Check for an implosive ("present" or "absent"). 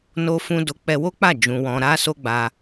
absent